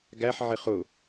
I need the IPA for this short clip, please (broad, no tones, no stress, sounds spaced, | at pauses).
ɡ æ ħ ʕ ɪ χ ʊ